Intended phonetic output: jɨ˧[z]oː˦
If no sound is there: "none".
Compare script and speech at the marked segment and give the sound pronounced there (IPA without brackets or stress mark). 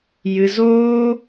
z